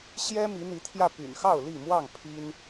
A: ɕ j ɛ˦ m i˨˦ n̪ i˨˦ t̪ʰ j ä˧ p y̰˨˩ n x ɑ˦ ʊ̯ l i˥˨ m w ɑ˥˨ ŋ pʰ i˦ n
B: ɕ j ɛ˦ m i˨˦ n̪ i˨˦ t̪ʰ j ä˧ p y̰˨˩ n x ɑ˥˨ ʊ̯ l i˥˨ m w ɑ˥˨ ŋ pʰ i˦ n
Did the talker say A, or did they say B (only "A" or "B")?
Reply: B